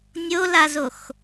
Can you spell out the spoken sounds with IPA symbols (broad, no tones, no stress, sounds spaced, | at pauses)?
nʲ o l a z o x